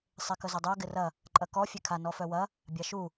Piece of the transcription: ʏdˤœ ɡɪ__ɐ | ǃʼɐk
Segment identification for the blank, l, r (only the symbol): r